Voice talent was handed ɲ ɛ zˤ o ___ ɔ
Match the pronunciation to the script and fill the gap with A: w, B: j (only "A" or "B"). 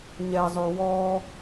A